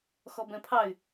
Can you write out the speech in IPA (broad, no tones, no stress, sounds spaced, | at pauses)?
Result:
x ɔ b ɛ̃ pʰ ɑ y̯